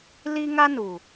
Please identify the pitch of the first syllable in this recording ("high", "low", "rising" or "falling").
high